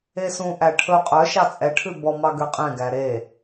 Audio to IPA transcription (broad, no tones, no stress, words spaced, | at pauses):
esũʔæ ʈʰɵ qʼœ ʃɑt͡sʼɛʈʰʉ bɔmɑ ɡøqʼɛ̃ɡæ ɾe